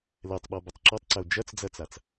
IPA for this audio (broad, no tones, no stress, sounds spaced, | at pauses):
l ɛ tˤ ɓ ɔ b ɐ tˤ ǁ ɔ tˤ ǀ ɐ o̯ d͡ʒ ɐ t͡s d͡z ɐ t͡s a t͡s